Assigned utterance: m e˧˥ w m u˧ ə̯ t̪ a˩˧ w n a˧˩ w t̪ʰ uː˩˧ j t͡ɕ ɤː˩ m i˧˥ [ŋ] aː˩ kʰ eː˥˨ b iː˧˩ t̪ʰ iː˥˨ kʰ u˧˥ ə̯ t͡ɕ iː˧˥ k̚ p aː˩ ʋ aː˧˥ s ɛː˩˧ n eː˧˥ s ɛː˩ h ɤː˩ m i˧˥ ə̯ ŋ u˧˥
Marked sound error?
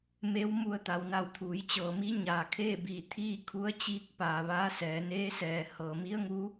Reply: yes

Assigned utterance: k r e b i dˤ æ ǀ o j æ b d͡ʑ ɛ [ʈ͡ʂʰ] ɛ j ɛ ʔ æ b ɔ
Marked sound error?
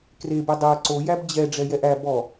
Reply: yes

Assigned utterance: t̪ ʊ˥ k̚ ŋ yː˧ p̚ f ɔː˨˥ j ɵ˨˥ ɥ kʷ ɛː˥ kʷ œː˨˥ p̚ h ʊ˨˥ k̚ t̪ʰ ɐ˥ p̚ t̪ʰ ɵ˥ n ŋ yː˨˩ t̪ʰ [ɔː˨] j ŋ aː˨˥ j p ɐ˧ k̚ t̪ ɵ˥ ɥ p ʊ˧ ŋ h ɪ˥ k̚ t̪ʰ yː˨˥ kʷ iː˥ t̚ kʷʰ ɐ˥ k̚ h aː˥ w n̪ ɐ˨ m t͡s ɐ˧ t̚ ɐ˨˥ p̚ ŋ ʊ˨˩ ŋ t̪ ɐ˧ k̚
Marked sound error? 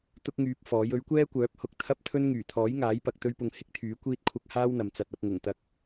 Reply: yes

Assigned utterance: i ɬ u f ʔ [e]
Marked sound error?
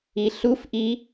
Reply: yes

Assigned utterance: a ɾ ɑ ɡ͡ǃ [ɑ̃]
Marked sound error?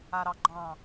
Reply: no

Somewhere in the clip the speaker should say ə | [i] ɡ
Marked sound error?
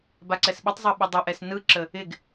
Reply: yes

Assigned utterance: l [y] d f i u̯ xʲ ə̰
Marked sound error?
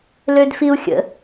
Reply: yes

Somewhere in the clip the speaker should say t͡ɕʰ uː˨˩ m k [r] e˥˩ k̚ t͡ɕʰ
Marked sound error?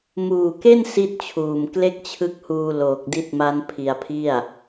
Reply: yes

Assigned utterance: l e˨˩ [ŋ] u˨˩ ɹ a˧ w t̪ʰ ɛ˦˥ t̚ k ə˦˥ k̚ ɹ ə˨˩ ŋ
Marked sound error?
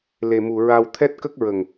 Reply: yes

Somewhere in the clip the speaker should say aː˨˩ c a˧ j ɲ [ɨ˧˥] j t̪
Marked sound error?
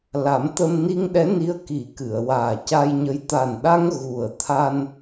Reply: yes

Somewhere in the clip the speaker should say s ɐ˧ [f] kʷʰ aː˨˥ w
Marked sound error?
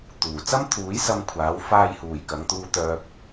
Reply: yes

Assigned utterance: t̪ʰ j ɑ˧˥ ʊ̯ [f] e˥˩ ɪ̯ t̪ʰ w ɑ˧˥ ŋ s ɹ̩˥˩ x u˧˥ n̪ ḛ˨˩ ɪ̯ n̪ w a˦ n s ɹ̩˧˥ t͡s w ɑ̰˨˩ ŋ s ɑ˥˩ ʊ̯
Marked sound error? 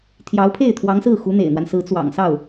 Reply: yes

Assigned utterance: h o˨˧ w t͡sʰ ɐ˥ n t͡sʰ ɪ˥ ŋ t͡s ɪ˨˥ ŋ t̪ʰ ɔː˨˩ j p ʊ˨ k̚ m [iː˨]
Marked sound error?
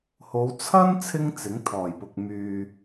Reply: yes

